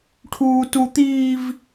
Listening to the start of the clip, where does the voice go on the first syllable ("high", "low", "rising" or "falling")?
high